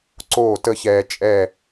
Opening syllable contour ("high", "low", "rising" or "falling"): falling